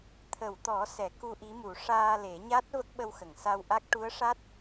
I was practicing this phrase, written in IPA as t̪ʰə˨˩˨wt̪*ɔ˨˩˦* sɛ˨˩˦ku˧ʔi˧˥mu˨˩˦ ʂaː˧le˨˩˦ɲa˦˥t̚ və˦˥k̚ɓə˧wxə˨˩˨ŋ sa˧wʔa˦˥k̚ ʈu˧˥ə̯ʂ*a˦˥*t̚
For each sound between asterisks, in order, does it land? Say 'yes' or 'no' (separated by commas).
yes, yes